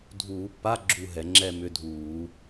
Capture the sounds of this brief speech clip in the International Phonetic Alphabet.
dʱ uː˧˩˧ pː a˧˥˧ ɡ͡ǁ u˥˧ ɦ ɛ˧˩˧ ŋ͡ǁ ɛ˥˧ m ʏ˧˥˧ dʱ uː˧˩˧

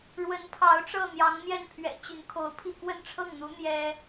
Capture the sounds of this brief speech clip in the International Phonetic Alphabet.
ɻ w ə˧˥ n pʰ ɑ˧˥ ʊ̯ ʈ͡ʂ ɤ˥˩ n̪ j ɑ˧˥ ŋ n̪ j ɛ˥˩ n pʰ ɥ ɛ̰˨˩ t͡ɕ y˧˥ n kʰ o˧˥ ʊ̯ pʰ i˥˧ k w ə˥˧ n ʈ͡ʂʰ ɤ˥˩ ŋ n̪ u˧˥ n̪ j ɛ˥

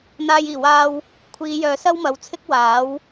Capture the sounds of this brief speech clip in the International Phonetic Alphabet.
n̪ aː˧ j iː˨˩ w aː˧ w | kʷʰ iː˨˧ j œː˨ s ɐ˥ w m ɐ˨˧ w t͡sʰ ɪ˥ k̚ w aː˨˥ w

